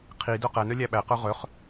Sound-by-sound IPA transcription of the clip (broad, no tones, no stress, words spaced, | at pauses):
qʰi dœqænœ lʲæɓæqœ ʁœχ